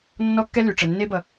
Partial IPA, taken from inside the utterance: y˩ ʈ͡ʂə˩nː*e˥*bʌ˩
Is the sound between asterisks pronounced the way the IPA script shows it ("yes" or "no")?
yes